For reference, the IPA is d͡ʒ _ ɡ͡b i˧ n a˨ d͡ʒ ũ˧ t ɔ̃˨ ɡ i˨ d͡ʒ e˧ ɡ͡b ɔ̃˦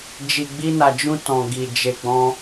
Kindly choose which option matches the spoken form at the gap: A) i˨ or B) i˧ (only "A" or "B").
A